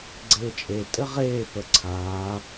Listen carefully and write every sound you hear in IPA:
ɡ͡ǀ eː t͡ʃʼ e tʼ ɘ ʁ eː p ə ǀʰ aː

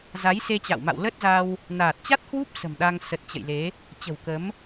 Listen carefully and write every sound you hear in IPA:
z a˨˦ j s e˧ t͡ɕ a̰˧˨ w m a̰˧˨ w l ə˦˥ t̚ z a˧ w | n aː˨˩ t̚ t͡ɕ a˦˥ t̚ h w u˦˥ p̚ s ə̤˨˩ m ɗ a˧ ŋ s ə˨˩ t̚ t͡ɕ ə̰˧˨ j l e˨˦ | t͡ɕ ə̤˨˩ w k ə˨˦ m

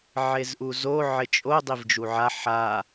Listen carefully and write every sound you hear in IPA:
ʕ e z ʔ u z o ʕ ɪ t͡ʃʼ o dˤ i v d͡ʒ u ʕ a ħ a

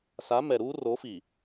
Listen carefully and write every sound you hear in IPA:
s a˨˦ m ɛ˨ ɾ uː˦ r o˨˦ f i˨

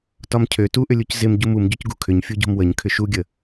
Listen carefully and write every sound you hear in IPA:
t ɒ m cʰ ø t u ʔ ʏ lʲ u c z ɪ m ɟ u m u m ɟ u c ɡ ṳ kʰ ʏ ɲ fʲ u ɟ o̤ m w ə ɲ kʰ ʏ ʃ u ɡʲ ə

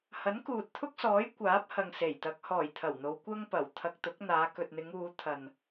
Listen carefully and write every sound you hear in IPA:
h ɐ˨˥ n k uː˨ t̚ t̪ʰ ʊ˥ k̚ s ɔː˨˥ j kʷ aː˨˥ p̚ h ɐ˨ ŋ s e˨˩ j t̪ ɐ˨˥ k̚ h ɔː˨˩ j t̪ʰ ɐ˨˩ w n̪ o˨˧ w kʷ ɐ˥ ŋ p ɐ˨˩ w t̪ʰ ɐ˧ k̚ t̪ ʊ˨˥ k̚ n̪ aː˨˧ k ɵ˨ t̚ n̪ ɪ˨˧ ŋ uː˨˧ t̪ʰ ɐ˨ n

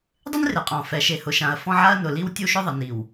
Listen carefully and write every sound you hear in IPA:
dˤ ɪ˦ n r e˨ qʼ ɔ̃˨ f ɛ˨ ʃ e˨ h ʊ˨ ʃ ã˨ ɐ̯ f ɔ̃˦ ʕ a˦ ɐ̯ n ʊ˨ l i˦ w tʲ u˦ ʃ ʊ˦ ðˤ ɪ˨ n i˨ w

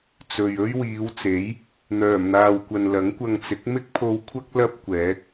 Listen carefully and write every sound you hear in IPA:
t͡s ɵ˨ ɥ ɵ˥ ɥ w iː˨˧ w t͡s e˨˥ j | n̪ œː˨˩ m n̪ aː˨ w kʷ ɐ˨ n l ɐ˨˥ ŋ kʷ ɐ˧ ŋ t͡s ɪ˨˥ k̚ m ɪ˥ k̚ pʰ o˧ w kʷʰ ɐ˥ k̚ l ɐ˥ p̚ kʷ ɛː˨˥ k̚

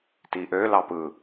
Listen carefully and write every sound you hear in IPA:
t i ʔ ø l ɑ p ɯ

